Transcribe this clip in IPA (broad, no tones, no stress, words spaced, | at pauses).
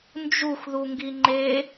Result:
nd͡ʒuxðuŋɡi ŋ͡ǃe